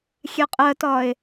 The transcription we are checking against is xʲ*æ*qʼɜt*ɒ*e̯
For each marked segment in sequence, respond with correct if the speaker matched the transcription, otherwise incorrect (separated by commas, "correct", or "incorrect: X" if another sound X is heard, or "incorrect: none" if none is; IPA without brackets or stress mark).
incorrect: ɛ, correct